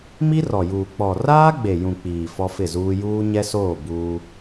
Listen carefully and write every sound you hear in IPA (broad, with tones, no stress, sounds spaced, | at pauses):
m i˦ r ɔ˨ j uː˨ k͡p ɔ˨ r aː˦ ɡ͡b e˨ j ũ˨ k͡p iː˨ f ɔ˦ f ɪ˦˨ z uː˦ j uː˦ ɲ ɛ˦ s oː˦˨ b uː˦